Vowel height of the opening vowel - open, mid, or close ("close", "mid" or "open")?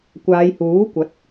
open